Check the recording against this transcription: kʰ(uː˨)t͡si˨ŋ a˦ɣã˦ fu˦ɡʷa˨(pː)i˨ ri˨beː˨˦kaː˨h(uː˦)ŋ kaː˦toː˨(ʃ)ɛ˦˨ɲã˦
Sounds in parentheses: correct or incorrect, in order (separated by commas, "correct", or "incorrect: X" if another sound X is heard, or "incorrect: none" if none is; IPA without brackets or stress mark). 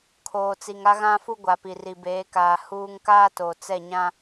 incorrect: oː˨, incorrect: p, correct, incorrect: t͡s